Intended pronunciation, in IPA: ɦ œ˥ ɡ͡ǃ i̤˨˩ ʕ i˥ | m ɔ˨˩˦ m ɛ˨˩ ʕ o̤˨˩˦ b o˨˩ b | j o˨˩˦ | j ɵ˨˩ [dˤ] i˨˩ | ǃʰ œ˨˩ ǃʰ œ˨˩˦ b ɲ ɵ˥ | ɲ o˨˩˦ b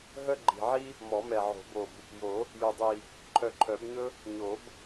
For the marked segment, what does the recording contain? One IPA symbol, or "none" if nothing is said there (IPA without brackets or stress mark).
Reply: dˤ